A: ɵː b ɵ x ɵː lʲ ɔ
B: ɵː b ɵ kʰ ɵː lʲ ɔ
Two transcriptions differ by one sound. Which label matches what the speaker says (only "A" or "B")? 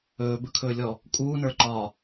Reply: B